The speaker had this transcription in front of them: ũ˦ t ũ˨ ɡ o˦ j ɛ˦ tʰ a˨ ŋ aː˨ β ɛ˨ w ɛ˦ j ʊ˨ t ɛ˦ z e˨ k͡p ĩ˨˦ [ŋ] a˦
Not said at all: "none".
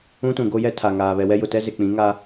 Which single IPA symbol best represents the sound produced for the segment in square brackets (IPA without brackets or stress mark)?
ŋ